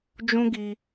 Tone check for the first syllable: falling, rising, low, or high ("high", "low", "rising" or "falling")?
high